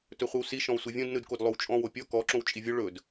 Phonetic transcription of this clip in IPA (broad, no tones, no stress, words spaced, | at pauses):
tɵχʷɯwsi ʃɔ̃wsʷivʲõd nɯdkodlˠowt͡ʃʼɔ̃ wopʲɔ kɔ ǁõwt͡ʃʼivʲo ɭɵd